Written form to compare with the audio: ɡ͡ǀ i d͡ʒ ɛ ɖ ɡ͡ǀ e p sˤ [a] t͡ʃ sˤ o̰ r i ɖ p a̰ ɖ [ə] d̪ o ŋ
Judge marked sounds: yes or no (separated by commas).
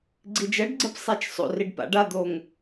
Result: yes, no